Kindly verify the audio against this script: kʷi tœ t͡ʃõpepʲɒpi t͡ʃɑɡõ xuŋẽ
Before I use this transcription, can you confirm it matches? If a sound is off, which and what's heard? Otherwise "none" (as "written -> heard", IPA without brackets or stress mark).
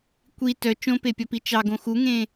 none